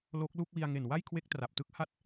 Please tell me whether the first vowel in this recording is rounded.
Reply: yes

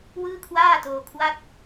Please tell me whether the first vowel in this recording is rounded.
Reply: no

